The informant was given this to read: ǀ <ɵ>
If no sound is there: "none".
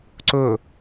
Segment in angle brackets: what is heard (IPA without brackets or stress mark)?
ɵ